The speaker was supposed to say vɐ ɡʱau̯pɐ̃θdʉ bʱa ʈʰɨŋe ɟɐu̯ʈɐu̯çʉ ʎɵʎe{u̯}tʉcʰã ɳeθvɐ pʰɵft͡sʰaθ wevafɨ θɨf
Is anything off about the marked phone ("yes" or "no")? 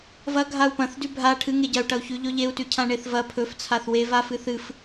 no